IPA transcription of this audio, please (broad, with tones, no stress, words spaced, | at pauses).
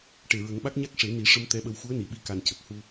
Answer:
ʈe˨˩ɹə˨˩˦ŋɓa˦˥k̚ ɲa˦˥k̚ʂe˨˩˦ni˨˩˦ʂə˧m t̪ɛ˧˥ɓə˧w xu˧˥ə̯ni˨˩˨ɓi˧ka˨˩n cə˨˩k̚hu˧